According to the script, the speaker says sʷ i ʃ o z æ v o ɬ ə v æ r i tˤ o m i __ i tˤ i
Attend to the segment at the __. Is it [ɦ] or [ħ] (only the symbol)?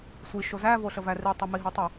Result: ɦ